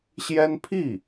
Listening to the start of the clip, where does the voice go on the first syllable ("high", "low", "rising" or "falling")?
high